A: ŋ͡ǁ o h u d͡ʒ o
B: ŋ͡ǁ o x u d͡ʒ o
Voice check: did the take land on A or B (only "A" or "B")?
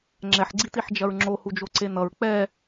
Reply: A